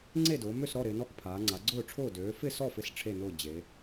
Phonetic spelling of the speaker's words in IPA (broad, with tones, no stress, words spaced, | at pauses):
ŋ͡ǀe˥˨dʊː˩˧ mø˥˨sɾɔ˥˨ ɾɪː˩˧nɔ˥˨kpʰaː˩˧ ŋ͡ǀa˩˧ɡ͡ǀʊː˥˨ʈ͡ʂʰʊː˥˨ døː˩˧fɪ˥˨sɔ˥˨ fɪ˥˨sʈ͡ʂʰe˥˨nʊː˥˨ d͡ʑe˩˧